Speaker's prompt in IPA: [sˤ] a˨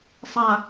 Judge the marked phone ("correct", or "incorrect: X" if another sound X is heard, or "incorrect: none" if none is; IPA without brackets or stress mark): correct